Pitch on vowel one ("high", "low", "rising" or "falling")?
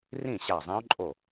falling